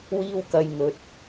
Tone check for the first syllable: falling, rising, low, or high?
high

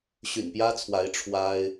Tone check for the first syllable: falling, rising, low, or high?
low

